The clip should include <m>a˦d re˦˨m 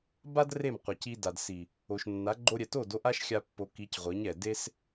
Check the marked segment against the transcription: incorrect: b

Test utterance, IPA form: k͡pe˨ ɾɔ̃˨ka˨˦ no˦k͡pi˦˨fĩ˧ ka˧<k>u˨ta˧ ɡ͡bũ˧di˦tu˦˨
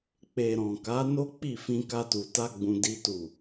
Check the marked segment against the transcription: incorrect: t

